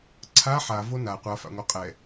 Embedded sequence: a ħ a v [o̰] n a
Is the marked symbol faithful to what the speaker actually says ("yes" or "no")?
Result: no